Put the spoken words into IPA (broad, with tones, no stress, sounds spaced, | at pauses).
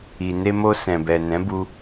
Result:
i˨ n e˧ m o˧ s ɛ̃˨ b ɛ˨ n ɛ̃˨˦ b u˧